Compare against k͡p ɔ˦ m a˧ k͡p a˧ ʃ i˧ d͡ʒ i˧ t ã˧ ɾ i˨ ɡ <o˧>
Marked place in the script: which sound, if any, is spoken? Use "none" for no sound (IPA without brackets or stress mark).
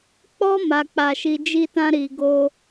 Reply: o˧